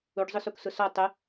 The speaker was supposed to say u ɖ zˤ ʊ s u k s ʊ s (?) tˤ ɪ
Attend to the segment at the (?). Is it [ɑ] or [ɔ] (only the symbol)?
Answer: ɔ